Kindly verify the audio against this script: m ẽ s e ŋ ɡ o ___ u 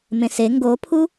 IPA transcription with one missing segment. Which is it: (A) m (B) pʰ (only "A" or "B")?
B